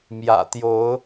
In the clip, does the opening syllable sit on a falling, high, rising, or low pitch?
low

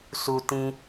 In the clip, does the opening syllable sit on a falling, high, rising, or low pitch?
high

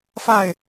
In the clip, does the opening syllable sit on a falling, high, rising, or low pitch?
falling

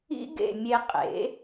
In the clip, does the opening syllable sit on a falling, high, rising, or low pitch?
high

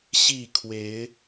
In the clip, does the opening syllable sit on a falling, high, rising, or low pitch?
falling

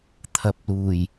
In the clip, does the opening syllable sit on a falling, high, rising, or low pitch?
rising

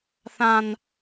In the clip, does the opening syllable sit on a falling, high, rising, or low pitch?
high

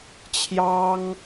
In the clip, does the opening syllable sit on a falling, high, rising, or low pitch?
high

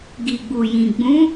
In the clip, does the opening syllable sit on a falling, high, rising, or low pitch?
low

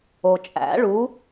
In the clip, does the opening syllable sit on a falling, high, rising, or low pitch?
low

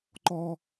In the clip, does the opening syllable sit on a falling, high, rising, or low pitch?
high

